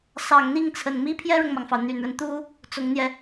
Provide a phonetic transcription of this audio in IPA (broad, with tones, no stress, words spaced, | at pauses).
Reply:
sɑ˨˩ŋn̪i˥˩ŋt͡sʰə˨˩nmi˥ pʰjɛ˥ɻʊ˨ŋmɑ˩ŋfɑ˩ʊ̯ n̪y˨˩nɻə˦n t̪u˥ | t͡sʊ˧˥ŋn̪jɛ˧